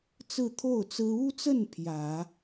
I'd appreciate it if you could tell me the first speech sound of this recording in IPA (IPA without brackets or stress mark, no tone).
t͡s